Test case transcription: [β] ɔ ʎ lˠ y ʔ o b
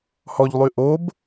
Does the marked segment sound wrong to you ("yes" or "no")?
yes